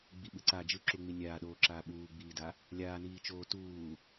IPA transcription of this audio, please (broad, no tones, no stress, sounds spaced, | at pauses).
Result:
ɡ͡b i ɓ ɯ ǀ a d͡ʒ ɯ ǁ u ŋ͡m i nʲ aː ɗ oː ǁ aː ɓ uː ɡ͡b iː d a | lʲ aː n iː t͡ʃ oː t uː